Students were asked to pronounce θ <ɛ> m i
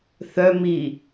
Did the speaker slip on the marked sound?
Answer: yes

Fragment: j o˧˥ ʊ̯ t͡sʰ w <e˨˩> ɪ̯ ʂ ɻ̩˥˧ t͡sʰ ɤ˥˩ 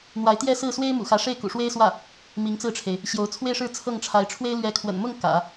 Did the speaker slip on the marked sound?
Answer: yes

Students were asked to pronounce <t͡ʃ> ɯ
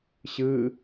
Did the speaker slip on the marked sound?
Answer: yes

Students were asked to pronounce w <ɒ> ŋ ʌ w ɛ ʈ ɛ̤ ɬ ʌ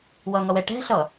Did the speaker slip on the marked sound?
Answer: yes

